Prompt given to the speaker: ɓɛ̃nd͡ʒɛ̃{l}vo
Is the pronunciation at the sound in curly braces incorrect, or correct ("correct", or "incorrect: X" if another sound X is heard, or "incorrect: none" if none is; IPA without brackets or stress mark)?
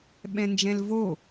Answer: correct